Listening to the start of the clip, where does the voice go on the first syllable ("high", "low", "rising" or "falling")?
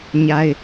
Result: high